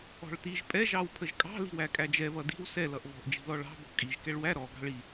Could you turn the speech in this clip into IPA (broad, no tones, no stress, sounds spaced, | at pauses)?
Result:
ɔ̤ ɭ t i ʒ pʼ ɛ ʒ ɑ w pʰ ə ʒ kʼ ɑ̤ l i̤ w æ kʼ æ d͡ʒ ɛ β ʌ d i̤ w s ɛ l ʌ ʔ β ɔ̤ ʔ d͡ʒ i̤ l ɔ ɭ ɑ̤ b ɔ̤ kʼ i ʒ k ɛ ɭ w æ ɾ ɔ ɡ ɑ̤ ɭ i